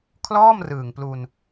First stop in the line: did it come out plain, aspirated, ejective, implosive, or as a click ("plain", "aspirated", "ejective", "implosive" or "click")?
aspirated